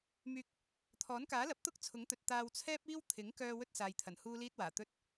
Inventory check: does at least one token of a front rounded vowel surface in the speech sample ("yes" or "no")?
yes